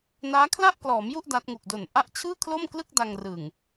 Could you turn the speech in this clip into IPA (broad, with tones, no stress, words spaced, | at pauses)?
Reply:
naː˦˥kʰla˥˩ʔklɔː˩˦mju˥˩ʔ da˦˥t̚ ŋu˨˩k̚do˨˩nʔa˥˩ʔ t͡ɕʰɯː˥˩kʰlo˥˩mklɯ˥˩k̚ da˧ŋrɯ˨˩ŋ